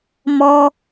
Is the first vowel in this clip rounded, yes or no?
yes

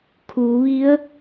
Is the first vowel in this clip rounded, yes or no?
yes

